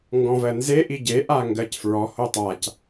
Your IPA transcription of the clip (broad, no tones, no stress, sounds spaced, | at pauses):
ŋ ɡ ɔ̃ v ɜ n z e ʔ i ɟ e ʔ a ŋ ɡ ɜ c f ɹ ɔ h o tˤ a c